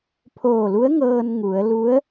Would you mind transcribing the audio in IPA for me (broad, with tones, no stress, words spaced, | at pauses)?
pʰoː˧˩lu˧˥ə̯ŋɤː˧n ŋu˩˧ə̯ lu˧˥ə̯